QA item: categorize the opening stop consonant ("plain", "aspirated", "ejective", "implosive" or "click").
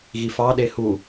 implosive